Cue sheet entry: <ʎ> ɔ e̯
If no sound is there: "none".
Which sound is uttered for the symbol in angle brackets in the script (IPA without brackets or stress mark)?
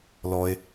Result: l